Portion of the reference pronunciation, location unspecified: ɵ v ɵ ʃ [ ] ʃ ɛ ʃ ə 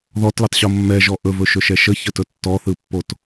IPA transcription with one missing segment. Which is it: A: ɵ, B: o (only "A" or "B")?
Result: A